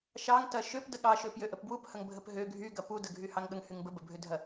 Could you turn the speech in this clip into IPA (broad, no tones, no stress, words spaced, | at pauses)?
ʃɑŋtɐ ʃøpdə ɠɑʃø pjøʔəpbwuphɐŋ bʱəpɦø ɡʱyɡɐ pudəɡʱy hɑŋɠəŋ hyŋbə bəbʱødʱɐ